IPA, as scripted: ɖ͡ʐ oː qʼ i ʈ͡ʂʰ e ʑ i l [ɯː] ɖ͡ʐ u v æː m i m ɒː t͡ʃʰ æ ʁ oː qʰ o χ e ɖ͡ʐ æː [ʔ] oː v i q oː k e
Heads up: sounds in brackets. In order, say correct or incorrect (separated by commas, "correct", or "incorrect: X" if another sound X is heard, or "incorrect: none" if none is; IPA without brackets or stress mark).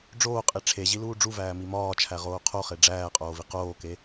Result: incorrect: uː, incorrect: qʼ